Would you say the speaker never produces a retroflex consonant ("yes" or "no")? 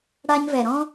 no